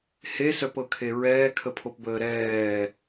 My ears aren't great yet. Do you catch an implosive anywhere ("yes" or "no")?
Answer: no